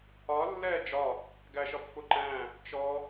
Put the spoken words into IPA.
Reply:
ɒ lː ɛː d͡ʒ ɒ | ɡ æ ʃ ɒ p f ʊ ǃ æ̃ | t͡ʃ ɔ

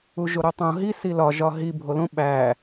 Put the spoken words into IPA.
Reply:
u ʒ o ɾ o tˤ õ ɦ i s i l ɒ ʒ ɒ ɦ i bʱ o l õ ɓ æ

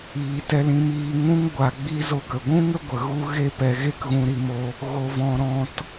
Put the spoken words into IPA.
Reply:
iː˧ t ɛ˧ l ĩ˧ m iː˧ ŋ ũ˦ ŋ ɡʷ a˧ ɡ͡b i˦ z o˧ k ə˨ ɡʷ ũ˦ ŋ ə˦ ɡʷ ə˨ ɣ u˦ ɣ e˦ p ɛ˧ ɣ e˦ k ɣ ũ˧ ɾ i˧ m o˧ | ɣ o˧ v ɔ̃˧ ɾ ɔ̃˧ t

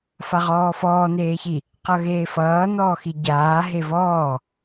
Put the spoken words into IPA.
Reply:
f a ʁ ɔː f ɔː n̪ eː ç i | q ʌ ɣ eː f ʌː n̪ ɔː x i ɟ aː ɦ e v ɔː

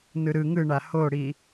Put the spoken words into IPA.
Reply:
n ɯ ɾ ɯ ŋ ɯ ɳ a h o ɽ i

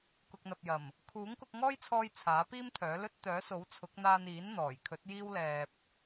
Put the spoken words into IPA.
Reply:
k ʊ˨ k̚ n̪ ɐ˨ p̚ j ɐ˨˩ m | kʰ uː˨˥ ŋ k ʊ˧ k̚ ŋ ɔː˥ j t͡sʰ ɔː˧ j t͡sʰ aː˨˥ p iː˥ m t̪ʰ œː˨˥ l ɵ˥ t̚ t̪ œː˨˥ s o˨˥ w t͡sʰ ʊ˨˥ k̚ n̪ aː˧ n iː˨˥ n n̪ ɔː˨˩ j kʰ ɵ˨˥ t̚ j iː˥ w l ɛː˧ p̚

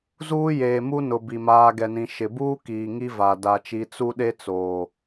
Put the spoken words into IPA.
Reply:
z uː˦ j eː˨ m u˦ n ʊ˨ b i˨ m aː˨ ɡ ɛ˨ n ĩ˨ ʃ ɪ˨ b uː˦ k iː˨ ŋ i˦ v a˨ d a˨ t͡ʃ i˨˦ t͡s u˦ ɗ e˦ t͡s oː˨

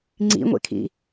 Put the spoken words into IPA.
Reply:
ŋ͡ǀ ḭ ŋʷ ḛ kʰ ḭ

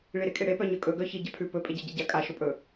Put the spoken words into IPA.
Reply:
ɭ i ɾ e kʼ e ɽ e p œ ɲ œ kʼ ɵ ɡ œ ç i ɟ a pʰ ʉ p ɵ pʼ e ɟ a ɟ e ɟ a kʼ a ʃ o pʼ ɵ

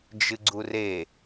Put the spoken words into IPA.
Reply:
d͡ʒ ɨ ɡ͡ǀ u r e

